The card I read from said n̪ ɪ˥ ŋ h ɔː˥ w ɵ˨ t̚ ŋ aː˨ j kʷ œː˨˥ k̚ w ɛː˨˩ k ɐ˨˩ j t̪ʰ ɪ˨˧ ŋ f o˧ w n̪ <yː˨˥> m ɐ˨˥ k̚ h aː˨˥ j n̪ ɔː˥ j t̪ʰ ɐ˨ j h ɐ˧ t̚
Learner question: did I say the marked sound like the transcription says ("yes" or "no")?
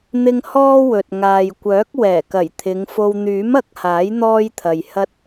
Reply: yes